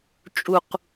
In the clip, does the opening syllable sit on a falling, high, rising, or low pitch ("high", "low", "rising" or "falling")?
low